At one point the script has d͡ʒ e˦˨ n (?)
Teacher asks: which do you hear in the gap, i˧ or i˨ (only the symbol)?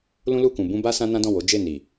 i˨